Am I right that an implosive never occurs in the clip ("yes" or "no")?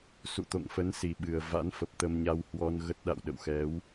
no